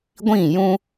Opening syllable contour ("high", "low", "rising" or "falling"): falling